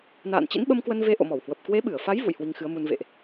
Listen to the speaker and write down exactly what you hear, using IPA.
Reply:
n a̰ː˧˨ n t͡ɕ ḭ˧˥ n ɓ ə˧ m k w ə˧ n v e˧ ʔ o̰˧˨ m ɔ˧˩ w h w ə˨˩ p̚ k w e˨˦ ɓ ɨ˧˩ ə̯ f a˨˦ j v ṵ˧˨ j h w i˧ ŋ x ɨ˨˦ ə̯ m u˧ n v ḛ˧˨ ʔ

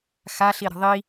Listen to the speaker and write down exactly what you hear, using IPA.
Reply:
x a ɬ i ɾ ə̤ ðˤ i

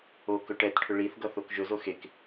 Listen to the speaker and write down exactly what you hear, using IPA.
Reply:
o k ɵ ʈ ɛ t ʈʰ ʏ ɭ i θ ɡ ʌ θ o k ʒ ɵ z o x e k

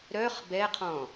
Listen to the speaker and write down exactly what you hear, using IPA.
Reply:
ɾ œ χ b ɛ qʰ ɔ̃

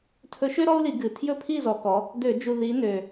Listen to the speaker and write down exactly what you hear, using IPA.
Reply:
tʰ ɵ˨˦ ʃ ø˦ ɾ ɔ˦ u̯ l i˧˩˧ ɡ ɨ˨˩ tʰ j ɵ˥˨ pʰ i˥˨ z ɔ˨˦ k ɔ˨˦ | d ø˧˩˧ d͡ʒ u˨˩ ð i˨˦ n ø˨˩

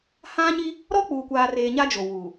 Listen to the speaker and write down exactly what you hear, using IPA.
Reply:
h ã˦ ɲ i˦ | ɾ ɔ˦ k͡p uː˨ kʷ aː˨ r eː˨ ɲ a˦ d͡ʒ o˨ w uː˨

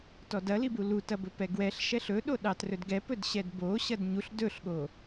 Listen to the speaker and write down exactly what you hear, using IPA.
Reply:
t ɔ d ɐ l i b u l u t ɐ b ɵ p ɛ ɡ w ɛ ɬ ʃ ɛ ɬ ɵ ɗ o ɗ ɑ t r ɵ d ɡ ɛ p ɵ d ɕ ɛ d b o ɕ ɐ d ɲ u ɬ d ɵ ɬ ɠ o

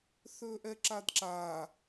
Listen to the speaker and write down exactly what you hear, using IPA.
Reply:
θ ɵː ʔ ɛ ǁ a d ǁ a

